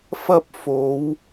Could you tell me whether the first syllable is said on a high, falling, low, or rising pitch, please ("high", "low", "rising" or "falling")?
high